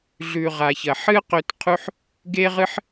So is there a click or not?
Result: no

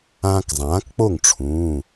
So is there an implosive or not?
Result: no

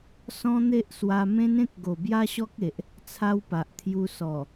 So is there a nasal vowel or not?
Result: yes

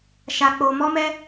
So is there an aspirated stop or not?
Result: no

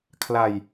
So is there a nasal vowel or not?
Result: no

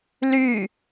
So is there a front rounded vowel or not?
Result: yes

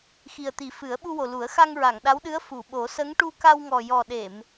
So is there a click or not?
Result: no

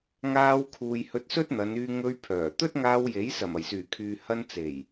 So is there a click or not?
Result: no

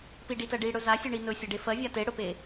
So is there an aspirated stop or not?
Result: no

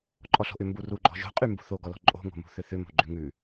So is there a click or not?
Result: yes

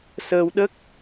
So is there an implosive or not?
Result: yes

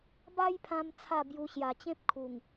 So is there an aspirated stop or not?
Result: yes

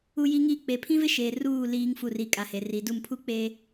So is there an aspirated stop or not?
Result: yes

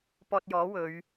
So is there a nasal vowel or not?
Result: no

